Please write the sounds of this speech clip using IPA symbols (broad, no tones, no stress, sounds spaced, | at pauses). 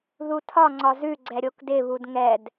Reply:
ð u tʰ ɒ ŋ͡ǀ ɒ z ʉ ɡ͡ǀ ɛ ɾʲ o k d ɪ β u d ŋ ɛ d